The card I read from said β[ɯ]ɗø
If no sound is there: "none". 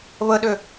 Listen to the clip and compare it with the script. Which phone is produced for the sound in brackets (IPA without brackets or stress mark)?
ə